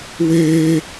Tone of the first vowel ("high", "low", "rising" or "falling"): high